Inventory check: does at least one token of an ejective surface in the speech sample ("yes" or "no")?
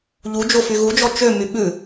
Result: no